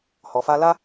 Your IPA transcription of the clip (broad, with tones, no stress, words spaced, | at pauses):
hɔ˨fa˧la˦